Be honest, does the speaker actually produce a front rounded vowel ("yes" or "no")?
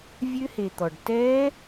yes